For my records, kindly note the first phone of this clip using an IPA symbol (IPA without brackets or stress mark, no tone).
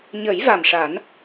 ɲ